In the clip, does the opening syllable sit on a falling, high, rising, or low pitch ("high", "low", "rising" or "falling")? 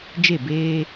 falling